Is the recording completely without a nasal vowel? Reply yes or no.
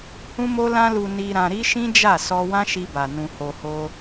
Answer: no